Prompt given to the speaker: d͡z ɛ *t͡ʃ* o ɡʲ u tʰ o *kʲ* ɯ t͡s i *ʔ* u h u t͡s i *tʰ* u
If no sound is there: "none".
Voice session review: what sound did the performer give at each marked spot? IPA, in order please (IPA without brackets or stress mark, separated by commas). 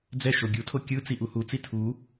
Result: ʃ, kʲ, ʔ, tʰ